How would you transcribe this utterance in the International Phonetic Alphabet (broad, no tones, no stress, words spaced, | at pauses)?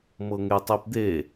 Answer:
mɤŋetˤipd̪e